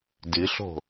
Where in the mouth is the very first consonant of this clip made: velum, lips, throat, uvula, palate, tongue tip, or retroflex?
tongue tip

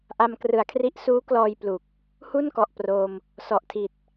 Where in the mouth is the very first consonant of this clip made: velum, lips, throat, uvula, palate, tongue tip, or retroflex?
throat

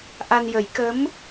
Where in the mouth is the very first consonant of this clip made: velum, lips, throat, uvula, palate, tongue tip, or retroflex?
throat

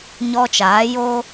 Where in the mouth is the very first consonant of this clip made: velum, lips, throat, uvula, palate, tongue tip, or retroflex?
palate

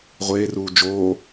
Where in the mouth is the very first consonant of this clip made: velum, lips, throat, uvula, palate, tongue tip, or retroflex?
uvula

